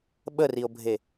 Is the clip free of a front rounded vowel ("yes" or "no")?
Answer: yes